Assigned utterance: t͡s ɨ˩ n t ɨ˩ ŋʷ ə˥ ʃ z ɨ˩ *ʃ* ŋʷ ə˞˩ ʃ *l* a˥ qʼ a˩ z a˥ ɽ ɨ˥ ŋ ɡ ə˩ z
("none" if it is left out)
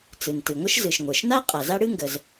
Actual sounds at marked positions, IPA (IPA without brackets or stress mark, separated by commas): ʃ, n